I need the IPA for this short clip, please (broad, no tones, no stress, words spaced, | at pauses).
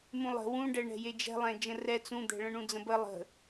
mũlˠə̤ wũɖɛ ɳɛ̤jed͡ʒɛ̤lˠɛ̃ d͡ʒə̃rɛ t͡sũd̪ɛ̤ɭə̃ ɳũd͡zə̃bə lˠə̤